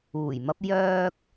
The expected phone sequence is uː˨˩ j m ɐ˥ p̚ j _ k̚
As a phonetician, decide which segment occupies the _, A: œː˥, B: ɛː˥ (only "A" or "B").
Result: A